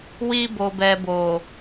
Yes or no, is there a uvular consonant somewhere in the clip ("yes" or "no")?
no